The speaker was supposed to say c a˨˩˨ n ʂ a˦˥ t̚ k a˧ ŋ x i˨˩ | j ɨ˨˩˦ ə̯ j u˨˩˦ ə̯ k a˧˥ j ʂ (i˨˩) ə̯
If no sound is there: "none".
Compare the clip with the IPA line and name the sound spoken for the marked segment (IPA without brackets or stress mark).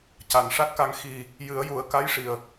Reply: i˨˩